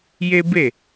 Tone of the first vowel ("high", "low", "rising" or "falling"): high